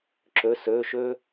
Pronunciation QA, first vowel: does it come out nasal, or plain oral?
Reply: oral